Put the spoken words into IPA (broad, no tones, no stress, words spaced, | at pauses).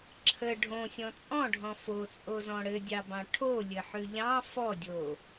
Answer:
ǁʰə ɖʱõsʲɔ̃ t͡sʼɔ̃ɖʱɔ̃ fot͡sʼozɔ̃ ɽɘdʲɑbɑ̃ ʈʰolʲɘħʉ ʎɑ̃ fɔdʲo